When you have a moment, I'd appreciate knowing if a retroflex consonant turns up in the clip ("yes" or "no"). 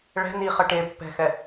yes